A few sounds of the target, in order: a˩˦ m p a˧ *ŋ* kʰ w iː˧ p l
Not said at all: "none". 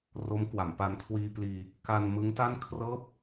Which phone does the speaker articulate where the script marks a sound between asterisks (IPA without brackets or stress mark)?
n